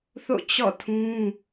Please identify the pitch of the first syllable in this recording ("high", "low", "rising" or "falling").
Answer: falling